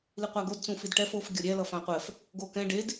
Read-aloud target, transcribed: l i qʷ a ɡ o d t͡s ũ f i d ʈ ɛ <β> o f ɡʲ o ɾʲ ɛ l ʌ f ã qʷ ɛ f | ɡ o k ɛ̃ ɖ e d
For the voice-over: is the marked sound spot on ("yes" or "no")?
no